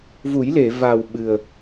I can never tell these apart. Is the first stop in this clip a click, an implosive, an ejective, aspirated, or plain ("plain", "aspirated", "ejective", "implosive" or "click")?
implosive